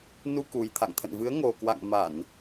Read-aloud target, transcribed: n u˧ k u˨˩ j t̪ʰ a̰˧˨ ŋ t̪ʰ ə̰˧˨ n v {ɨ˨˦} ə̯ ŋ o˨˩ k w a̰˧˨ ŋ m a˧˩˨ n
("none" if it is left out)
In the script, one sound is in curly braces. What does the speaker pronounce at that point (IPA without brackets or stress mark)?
ɨ˨˦